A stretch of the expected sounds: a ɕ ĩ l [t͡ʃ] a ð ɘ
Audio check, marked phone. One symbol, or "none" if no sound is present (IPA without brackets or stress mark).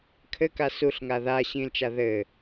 t͡ʃ